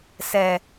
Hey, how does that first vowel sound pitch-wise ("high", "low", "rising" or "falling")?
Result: low